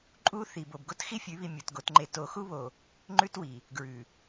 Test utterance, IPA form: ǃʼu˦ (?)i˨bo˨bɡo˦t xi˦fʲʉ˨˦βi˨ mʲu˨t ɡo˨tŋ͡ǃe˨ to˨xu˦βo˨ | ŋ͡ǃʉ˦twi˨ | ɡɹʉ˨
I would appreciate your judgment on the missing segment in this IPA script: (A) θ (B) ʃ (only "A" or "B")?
A